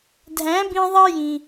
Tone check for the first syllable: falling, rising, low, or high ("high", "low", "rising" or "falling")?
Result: rising